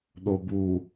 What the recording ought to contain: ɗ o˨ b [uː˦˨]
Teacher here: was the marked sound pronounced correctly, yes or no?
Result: no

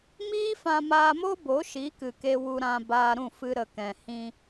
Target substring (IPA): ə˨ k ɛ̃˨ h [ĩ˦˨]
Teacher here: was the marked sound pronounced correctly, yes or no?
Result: no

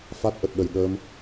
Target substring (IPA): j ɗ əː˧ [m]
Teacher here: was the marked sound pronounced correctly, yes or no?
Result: yes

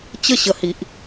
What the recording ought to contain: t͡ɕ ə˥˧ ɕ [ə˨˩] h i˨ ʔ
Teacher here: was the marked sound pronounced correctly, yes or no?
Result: yes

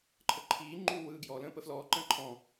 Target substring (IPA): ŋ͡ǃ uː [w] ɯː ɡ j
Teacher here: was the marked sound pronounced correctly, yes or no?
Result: yes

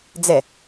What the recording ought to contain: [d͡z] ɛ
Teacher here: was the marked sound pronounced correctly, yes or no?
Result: yes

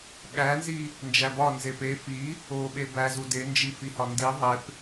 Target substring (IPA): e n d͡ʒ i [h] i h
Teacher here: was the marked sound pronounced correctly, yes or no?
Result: no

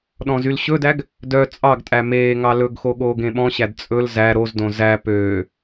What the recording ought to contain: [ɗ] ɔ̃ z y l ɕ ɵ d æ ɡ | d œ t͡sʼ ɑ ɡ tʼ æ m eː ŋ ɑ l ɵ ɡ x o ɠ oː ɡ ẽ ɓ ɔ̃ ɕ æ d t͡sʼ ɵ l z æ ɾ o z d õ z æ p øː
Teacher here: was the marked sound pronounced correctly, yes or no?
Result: yes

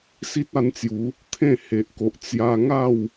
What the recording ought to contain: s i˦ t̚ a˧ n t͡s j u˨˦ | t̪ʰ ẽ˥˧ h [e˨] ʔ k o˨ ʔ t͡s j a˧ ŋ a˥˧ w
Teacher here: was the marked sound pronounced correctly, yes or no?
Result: yes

